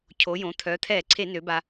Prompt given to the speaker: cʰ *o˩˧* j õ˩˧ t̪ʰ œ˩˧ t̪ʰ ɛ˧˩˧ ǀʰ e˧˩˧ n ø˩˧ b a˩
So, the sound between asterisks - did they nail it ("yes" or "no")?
yes